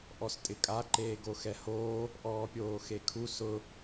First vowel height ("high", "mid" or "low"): mid